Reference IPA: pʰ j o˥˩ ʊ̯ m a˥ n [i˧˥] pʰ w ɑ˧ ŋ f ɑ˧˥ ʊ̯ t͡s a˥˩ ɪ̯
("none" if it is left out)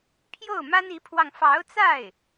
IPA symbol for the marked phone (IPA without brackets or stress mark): i˧˥